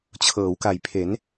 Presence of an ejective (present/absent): absent